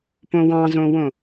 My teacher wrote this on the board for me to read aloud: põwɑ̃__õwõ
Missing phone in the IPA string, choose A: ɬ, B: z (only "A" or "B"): B